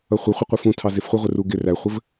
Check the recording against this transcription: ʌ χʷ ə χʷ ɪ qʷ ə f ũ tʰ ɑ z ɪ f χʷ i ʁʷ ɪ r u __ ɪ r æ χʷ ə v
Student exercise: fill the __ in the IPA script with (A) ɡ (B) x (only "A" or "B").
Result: A